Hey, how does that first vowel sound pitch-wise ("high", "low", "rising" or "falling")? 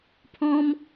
high